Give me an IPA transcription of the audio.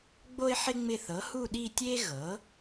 ɡ͡b o˦ ɪ̯ ħ ɪ˦ ŋ͡m ɪ˦˨ θ ɤ˩˥ h u˦˨ ɗ i˦˨ tʲ e˦ ɣ ɤ˩˥

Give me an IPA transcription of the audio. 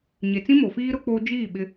ɲ e˨ t͡s ĩ˦ m o˨ f iː˦ ɾ ʊ˦ k͡p oː˦ d͡ʒ iː˦˨ ɓ ɪ˦

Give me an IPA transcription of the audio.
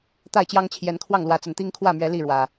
t̪ a˥˨ ɪ̯ t͡ɕ j ɑ˦ ŋ t͡ɕʰ j ɛ˨˦ n kʰ w ɑ˥˨ ŋ l w ä˨˦ t͡s ə˨˩ n t̪ i˦ ŋ kʰ w ä˥˨ m ɥ ɛ˨˦ l i˥˨ ɻ w ä˨˩

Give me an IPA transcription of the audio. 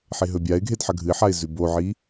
ħ e ɦ ɵ bʲ a ɪ̯ ɡʱ e d ħ ɐ ɡʱ ɨ ɪ̯ ħ a ɪ̯ z ʉ b o ʕ i

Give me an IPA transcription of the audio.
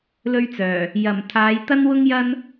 l ɵ˥ ɥ t͡s œː˨˩ | j ɐ˨˩ m t̪ʰ aː˨˧ j t̪ ɐ˥ n w ʊ˥ ŋ j ɐ˥ n

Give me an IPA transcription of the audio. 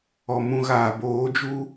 ɔ˨ m ũ˨ ɣ aː˨ b oː˨˦ d͡ʒ uː˦

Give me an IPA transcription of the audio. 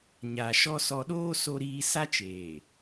ɲ a˨ ʃ ɔ˦ s ɔ˦ ɗ oː˦ s o˦ ɾ iː˦ s a˦ t͡ʃ eː˨

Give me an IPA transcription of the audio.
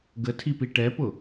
ɡ ə tʰ i p i ʈ ɛ p ʊ

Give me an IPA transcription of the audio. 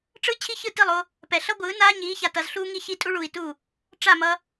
ʈ͡ʂ ɯ˦ t͡ɕʰ i˦ ç ɯ˦˨ t i˦˨ lˠ o˦ | p ɛ˨ ɬ ʌ˦ ɡʷ ɯː˨˦ n aː˦ ɲ iː˨˦ ç a˨ t ʌ˨ z ɬ uː˦ ŋ i˦ ç i˦ tʼ u˦ ɭ uː˨ i̯ t u˦˨ | ʈ͡ʂ a˦˨ m ʌ˦

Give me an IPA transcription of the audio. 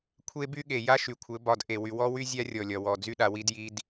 kʷʰ e˦ b y˦ ɠ e˨ j a˦ ʃ y˨ kʷʰ ɘ˨˦ b ɒ˨ d ʔ e˨ w y˨ w ɔ˦ w y˦ zʲ a˦ rʲ ɔ˨ lʲ ɒ˨ w ɔ˨ d͡z y˦ ɗ a˨ w i˦ d j i˦ d

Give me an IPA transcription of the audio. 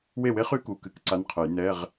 w e˥˩ w e˦˥ χ y˦˥ k u˩˧˩ k ɨ˧ k ǀ a˧˥˧ n qʰ ɨ˨˩˦ j n ɛ˧˥˧ ʁ

